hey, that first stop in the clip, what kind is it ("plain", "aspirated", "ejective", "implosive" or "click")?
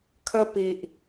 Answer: aspirated